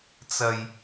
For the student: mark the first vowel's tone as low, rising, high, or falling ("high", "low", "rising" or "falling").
low